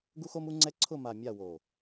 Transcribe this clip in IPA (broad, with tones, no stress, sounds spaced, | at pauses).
ɡ u˦ x o˦ m u˦ ŋ͡ǀ ɛ˦ ǀʰ ʊ˦˨ m a˨ mʲ a˦˨ w o˨